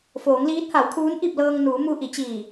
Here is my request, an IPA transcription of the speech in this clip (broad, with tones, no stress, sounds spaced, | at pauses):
f oː˩˧ ŋ l iː˧˥ t̚ h a˩˧ w kʰ uː˧˥ n ʔ i˥˨ p̚ l ɤː˧ ŋ n uː˩˧ m u˧ ʔ i˩˧ t͡ɕ iː˧˩